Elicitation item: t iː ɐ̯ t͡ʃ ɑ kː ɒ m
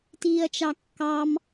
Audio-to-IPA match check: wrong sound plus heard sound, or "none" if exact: ɒ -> ɑ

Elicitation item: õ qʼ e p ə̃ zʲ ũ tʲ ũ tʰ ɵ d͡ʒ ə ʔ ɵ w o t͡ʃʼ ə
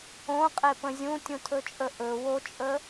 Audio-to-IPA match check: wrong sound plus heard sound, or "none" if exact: d͡ʒ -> t͡ʃʼ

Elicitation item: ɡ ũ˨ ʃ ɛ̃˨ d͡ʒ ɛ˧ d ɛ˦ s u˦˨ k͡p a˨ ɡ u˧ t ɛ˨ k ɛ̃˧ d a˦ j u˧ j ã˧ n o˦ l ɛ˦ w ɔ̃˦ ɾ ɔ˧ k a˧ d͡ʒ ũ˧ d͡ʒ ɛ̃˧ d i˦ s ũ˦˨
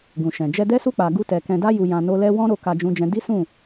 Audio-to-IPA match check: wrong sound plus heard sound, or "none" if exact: ɔ˧ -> o˧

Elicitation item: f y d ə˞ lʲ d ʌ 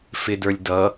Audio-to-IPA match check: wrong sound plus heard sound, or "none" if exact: y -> ɪ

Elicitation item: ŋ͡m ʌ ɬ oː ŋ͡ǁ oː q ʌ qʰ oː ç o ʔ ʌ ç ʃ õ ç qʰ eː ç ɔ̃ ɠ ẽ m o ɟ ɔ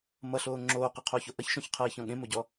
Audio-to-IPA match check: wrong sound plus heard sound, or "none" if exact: ŋ͡m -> m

